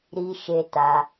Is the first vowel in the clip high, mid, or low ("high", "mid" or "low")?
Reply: high